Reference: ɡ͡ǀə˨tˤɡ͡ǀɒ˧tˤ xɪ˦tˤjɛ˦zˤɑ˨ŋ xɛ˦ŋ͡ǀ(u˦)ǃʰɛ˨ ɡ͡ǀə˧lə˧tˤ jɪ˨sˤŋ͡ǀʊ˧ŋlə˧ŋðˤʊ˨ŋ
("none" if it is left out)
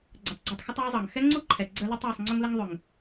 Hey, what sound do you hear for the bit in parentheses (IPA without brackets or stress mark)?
u˦